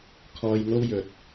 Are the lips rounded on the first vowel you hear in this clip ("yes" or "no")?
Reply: yes